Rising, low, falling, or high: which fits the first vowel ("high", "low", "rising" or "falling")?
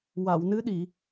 low